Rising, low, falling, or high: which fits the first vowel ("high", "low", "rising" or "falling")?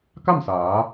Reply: falling